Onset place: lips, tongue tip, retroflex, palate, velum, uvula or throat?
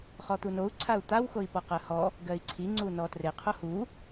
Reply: uvula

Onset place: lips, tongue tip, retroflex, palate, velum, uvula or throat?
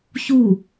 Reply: palate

